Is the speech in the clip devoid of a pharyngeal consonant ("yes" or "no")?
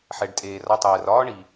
no